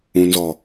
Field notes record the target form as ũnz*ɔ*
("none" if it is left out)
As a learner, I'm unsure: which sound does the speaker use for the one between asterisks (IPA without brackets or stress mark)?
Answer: ɔ